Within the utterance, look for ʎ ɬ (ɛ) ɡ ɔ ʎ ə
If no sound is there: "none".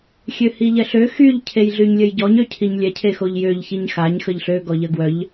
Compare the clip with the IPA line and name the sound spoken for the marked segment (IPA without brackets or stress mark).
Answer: ø